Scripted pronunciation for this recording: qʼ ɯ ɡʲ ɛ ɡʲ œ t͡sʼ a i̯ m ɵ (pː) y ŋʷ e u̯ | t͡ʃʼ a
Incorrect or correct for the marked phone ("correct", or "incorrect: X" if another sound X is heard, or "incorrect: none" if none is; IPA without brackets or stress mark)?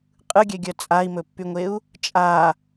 correct